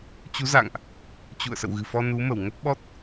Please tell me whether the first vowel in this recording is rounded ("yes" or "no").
yes